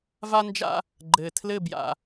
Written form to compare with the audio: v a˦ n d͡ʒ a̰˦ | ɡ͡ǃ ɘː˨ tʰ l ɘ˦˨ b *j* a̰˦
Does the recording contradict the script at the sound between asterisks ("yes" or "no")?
no